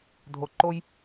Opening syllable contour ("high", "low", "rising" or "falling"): low